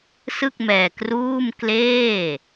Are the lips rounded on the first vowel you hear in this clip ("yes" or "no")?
no